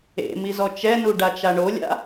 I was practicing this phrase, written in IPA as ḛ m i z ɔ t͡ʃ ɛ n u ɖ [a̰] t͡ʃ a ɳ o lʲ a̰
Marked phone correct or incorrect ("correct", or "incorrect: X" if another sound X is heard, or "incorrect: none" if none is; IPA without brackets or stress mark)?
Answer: incorrect: a